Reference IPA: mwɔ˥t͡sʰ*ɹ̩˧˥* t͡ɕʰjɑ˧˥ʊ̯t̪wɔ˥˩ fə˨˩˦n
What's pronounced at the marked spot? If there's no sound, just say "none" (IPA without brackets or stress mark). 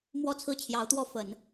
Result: ɹ̩˥˩